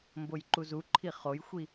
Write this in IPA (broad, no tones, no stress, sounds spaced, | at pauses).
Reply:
m b o j ǃ u z u ǃʰ i χ o j xʷ i